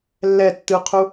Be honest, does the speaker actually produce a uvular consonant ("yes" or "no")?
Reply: yes